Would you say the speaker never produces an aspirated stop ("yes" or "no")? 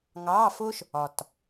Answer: yes